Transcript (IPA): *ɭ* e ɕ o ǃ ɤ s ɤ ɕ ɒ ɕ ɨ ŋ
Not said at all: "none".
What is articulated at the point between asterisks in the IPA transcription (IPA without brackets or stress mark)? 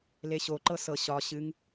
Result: l